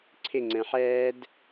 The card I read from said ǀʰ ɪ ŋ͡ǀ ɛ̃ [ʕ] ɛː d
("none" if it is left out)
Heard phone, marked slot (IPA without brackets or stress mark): ħ